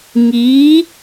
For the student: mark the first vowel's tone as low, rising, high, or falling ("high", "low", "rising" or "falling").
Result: rising